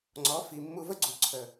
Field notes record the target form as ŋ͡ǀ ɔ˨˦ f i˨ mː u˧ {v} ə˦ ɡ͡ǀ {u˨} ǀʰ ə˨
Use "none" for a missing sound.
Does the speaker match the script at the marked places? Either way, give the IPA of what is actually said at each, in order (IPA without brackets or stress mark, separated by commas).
v, u˨